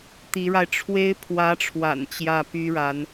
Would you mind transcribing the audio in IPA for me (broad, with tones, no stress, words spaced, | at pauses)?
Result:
t̪i˧˥ɻa˧ɪ̯ʈ͡ʂʰwe˥ɪ̯ pʰwä˧˥ʈ͡ʂʰwa̰˨˩n t͡ɕjä˥˩py˥ɻa˧˥n